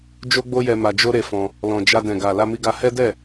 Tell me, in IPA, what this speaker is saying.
d͡ʒ o˦ ɡ͡b o˦ j ɛ˧ m a˧ d͡ʒ o˦ ɾ e˧ f ɔ̃˧ | l ɔ̃˨ d͡ʒ a˧ d ɛ̃˨ ɡ a˨ l a˧ m i˧ ɡ a˧ h ɛ˦ d ɛ˦˨

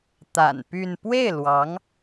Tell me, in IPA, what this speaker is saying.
t̪ a̰˨˩ n p y˥˧ n p w e˥˩ ɪ̯ l w ɑ˧˥ ŋ

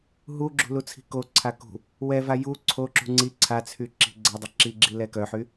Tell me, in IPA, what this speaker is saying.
ɦ u ɡ͡ǁ ṳ l u t͡sʰ i̤ k o ǀʰ a k ṳ | w ɛ v a j u ǀʰ o ǁ ṳ ŋ͡ǀ i ǀʰ a t͡sʰ y ǁ i̤ ɡ͡ǀ ɛ dˤ e ǁ i ɡ͡ǁ i l ɛ k œ ħ y

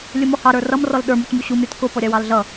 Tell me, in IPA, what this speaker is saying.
lʲ ʊ m ɔ h ɑ ɾ ə˞ r ʌ m r ɔ l ɗ ə˞ m ʊ t m u ɕ u m ɾʲ ʊ t k ʊ p ɔ ɾʲ ɑ w ɑ l ɮ ʌ

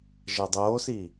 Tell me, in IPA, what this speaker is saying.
ʒ æ dˤ oː s iː

